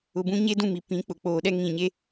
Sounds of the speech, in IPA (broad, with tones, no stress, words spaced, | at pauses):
ʊ˨bũ˦ ɲe˦dũ˦˨mi˨ pĩ˨˦ k͡pʊ˨k͡poː˨ɗɛ˦ ŋĩ˨ɲe˦